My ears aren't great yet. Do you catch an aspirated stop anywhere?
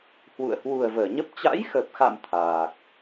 yes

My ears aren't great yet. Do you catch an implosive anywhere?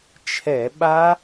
yes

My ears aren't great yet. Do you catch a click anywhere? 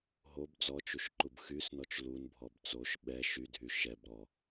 yes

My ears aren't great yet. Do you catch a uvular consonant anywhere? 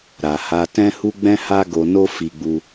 no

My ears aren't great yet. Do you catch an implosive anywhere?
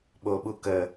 yes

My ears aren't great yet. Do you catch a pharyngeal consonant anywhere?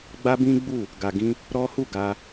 no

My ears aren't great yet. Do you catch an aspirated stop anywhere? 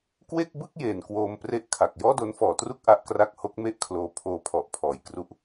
yes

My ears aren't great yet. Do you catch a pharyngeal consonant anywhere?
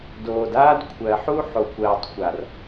yes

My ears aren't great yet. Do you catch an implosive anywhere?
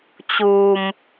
no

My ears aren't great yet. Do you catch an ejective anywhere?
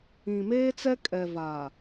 yes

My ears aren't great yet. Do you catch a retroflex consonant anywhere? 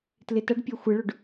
yes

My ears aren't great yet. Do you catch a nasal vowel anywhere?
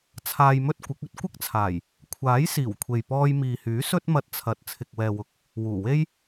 no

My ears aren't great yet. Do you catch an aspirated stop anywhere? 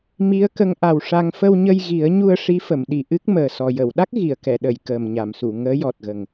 no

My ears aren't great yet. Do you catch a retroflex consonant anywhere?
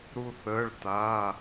yes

